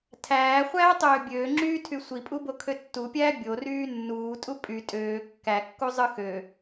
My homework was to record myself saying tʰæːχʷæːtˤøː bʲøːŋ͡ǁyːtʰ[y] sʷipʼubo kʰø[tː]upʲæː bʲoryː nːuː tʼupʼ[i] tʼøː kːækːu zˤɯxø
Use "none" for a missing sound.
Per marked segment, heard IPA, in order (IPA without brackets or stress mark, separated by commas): y, tː, y